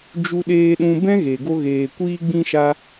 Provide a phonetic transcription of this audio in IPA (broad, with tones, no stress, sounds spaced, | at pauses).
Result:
d͡ʒ u˧ ɗ eː˧ ɗ ũ˧ b ɛ̃˦ ɣ e˨ ɡ o˧ ɣ eː˨ kʷ iː˧ ɡ͡b ĩ˧ ʃ a˧